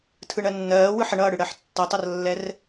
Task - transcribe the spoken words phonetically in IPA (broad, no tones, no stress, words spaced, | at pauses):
tʰɯɳɜnːɜː wɯħəɳʌːɽɯ ɽɜħtːʌtˤʌrlːɛr